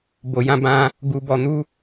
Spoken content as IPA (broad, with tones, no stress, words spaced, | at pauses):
bo˧jã˦ bã˦ | ɡu˧bɔ˧nu˦